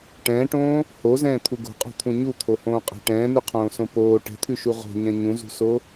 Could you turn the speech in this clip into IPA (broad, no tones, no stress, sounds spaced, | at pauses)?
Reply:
ʈ ɛ̃ː ʈ õː | h o z ɛ̃ː t̪ʰ u ɡ o̤ qʼ o̤ t̪ʰ ũ ɲ u t̪ʰ o h õː qʼ ɛ̤ ʈ ɛ̃ː n ʉ qʰ õː s õ p oː ʈ ɛ̤ t̪ʰ ʉ ʃ u ʁ o̤ ɲ ɛ̃ ɲ ũ z ṳ s o